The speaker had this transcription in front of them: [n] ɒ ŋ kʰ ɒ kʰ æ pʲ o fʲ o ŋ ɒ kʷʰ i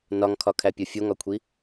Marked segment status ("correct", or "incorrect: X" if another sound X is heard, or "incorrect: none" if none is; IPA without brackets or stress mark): correct